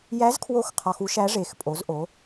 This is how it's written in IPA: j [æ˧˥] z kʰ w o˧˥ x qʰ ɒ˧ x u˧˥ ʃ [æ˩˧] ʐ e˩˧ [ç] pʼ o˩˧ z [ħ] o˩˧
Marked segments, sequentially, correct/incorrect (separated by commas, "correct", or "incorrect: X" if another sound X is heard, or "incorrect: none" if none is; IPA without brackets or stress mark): correct, incorrect: æ˧˥, incorrect: x, incorrect: ʔ